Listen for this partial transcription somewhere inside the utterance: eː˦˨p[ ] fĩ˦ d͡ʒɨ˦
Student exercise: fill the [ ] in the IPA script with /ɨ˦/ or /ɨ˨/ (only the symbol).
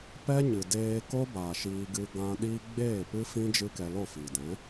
ɨ˦